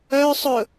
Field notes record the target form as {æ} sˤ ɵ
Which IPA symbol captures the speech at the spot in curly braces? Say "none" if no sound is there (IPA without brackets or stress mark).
œ